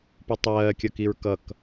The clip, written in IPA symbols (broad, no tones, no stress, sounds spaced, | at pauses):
p u tˤ ɜː kʲ ʌ k i ɹ k ʌ k